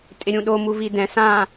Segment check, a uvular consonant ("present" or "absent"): absent